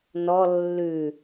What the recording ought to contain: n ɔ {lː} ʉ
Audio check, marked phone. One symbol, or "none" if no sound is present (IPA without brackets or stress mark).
lː